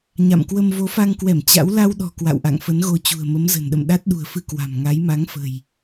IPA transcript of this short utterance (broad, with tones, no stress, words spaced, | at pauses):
ɲa̰˧˨mkwə˧m vo˨˦fa˧ŋkwɛ˧˩m t͡ɕa̰˧˥w la˧wɗɔ̤˨˩ kwa̰˧˨wʔa̰˧˨ŋfə˨˦nɣo˧ t͡ɕṳ˨˩ə̯mə˨˦mzə̤˨˩nɗə̰˧˨m ɗa˦˥t̚ɗṳ˨˩ə̯fɨ˧ kwa̤˨˩mŋa˨˦jma˨˦ŋ fə̤˨˩j